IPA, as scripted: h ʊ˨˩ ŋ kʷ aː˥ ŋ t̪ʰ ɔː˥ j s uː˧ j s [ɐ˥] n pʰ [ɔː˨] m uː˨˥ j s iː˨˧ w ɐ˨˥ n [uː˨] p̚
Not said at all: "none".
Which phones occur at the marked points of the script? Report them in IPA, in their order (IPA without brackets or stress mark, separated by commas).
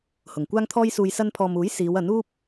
ɐ˧, ɔː˨, uː˥